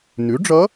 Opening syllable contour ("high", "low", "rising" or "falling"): rising